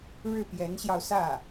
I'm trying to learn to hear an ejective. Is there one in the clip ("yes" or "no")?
no